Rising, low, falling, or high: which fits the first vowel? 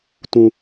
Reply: high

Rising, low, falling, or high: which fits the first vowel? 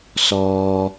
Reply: low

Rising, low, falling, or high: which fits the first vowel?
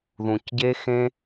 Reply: low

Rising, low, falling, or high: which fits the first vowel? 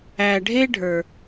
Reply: low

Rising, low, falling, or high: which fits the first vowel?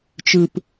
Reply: low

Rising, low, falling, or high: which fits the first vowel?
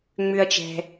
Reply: high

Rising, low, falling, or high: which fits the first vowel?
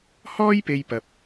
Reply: high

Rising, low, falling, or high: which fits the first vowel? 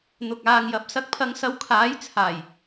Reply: low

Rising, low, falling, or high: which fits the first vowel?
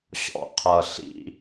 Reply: low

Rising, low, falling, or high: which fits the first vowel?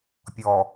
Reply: low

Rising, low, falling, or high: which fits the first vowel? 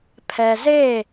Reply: low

